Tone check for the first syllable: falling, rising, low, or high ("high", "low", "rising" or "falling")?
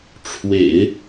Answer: low